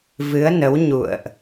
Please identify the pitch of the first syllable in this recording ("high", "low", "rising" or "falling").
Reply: rising